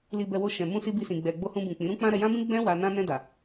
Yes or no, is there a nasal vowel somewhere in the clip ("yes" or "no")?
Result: yes